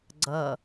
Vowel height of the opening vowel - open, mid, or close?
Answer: mid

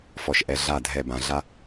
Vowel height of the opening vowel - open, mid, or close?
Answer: mid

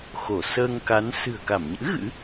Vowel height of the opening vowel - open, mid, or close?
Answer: mid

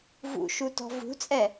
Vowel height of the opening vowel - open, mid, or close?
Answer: close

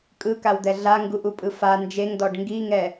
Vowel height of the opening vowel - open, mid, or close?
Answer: close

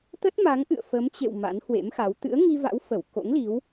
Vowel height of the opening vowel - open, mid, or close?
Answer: mid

